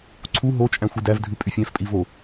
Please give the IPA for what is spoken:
ǀʰ u ɦ o t͡ʃʼ æ̃ xʷ i d æ v dʱ ʉ pʼ y fʲ æ̃ f pʼ i v o

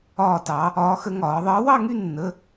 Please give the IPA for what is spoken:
ɒː˥˧ t ɑ˧˥ | ɒː˧˥ x ə˧˥ ŋ ɒː˩˧ ðˤ əː˧˥ w ɑ˥˧ ŋ y˥˧ nː ə˧˥˧

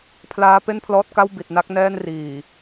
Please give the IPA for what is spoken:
pʰ l aː˦˥ p e˥˩ n pʰ l ɔː˦˥ t̚ k a˥˩ w b i˨˩ t̚ n a˦˥ k̚ n ɛː˥˩ n r iː˨˩

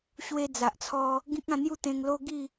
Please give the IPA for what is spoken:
ɕ w e˧ d͡z a˨ ʔ t͡sʰ ɔ˧ | ɡ ĩ˦ k̚ ã˥˧ n̪ j u˥˧ t̪ ẽ˧ ŋ l o˦ ɡ i˥˧

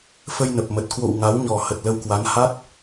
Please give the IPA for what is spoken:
f ə˧ j n ə˨˩ p̚ m ə˨˩ t̚ k w o̰˧˨ w ŋ a˨˦ w ɲ ɔ˨˩ h ə˨˩ t̚ l ə˧ w k w a˨˦ n h a˦˥ t̚

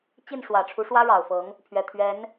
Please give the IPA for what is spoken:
t͡ɕ i˥˩ n ʂ w ä˨˩ ʈ͡ʂʰ u˧˥ ʂ w ä˥ ɻ ɑ˨˩ ʊ̯ f ɤ˧˥ ŋ | pʰ ɥ ɛ˨˩ t̪ʰ ɥ ɛ˧˥ n

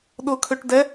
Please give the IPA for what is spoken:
ɗ ʊ kʰ ø ʈ d ɛ

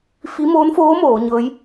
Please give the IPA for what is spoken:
f i˧˥ m oː˧˥ n f oː˧˥ m oː˩˧ ɲ ɤː˧˥ j

